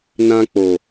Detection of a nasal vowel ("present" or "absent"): present